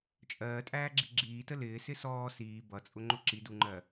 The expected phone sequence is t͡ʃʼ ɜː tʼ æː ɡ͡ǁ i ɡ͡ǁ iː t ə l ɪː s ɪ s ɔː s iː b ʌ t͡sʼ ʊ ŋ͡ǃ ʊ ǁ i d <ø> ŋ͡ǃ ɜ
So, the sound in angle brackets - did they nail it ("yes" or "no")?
no